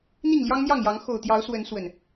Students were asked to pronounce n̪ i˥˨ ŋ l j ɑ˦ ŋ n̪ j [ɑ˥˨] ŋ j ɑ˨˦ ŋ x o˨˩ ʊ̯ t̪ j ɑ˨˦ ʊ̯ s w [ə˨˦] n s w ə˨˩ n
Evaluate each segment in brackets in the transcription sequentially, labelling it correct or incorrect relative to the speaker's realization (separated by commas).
correct, correct